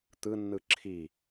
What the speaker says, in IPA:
t̪ɯnːɯ ǁʰi

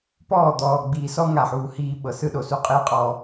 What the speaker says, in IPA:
pɔː˦˨d̪ɔː˨ ɡ͡biː˨sɔ˦ ŋa˨ħuː˨ hiː˦ ɓɤ˨sɯ˦ɗo˨su˦ qʼiː˦qʼɔː˨

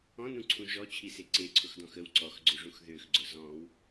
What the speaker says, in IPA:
ɔ̃nũǀʰũ ʒɔt͡ɕʰise ǀeǀʰʊxdɔ̃x əw ǀɔxɡ͡ǀøʐũx ðøxɡ͡ǀʊ zɔ̃w

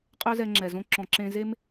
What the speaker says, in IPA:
qʼø˦zɛ˧ ŋ͡ǁɛ˨zõ˦ ǁɔ̃˨ ǁẽ˧ze˦m

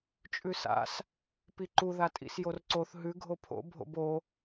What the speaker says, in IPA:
t͡ʃʼʉsa̰s | piǃu ðatʼḭsjorǀoθ ɦʉ ɡʱopʰo̰ bʱo̰bo

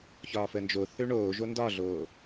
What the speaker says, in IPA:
çɒːfəːnd͡ʒo θøɳoː ʒondɒɮoː

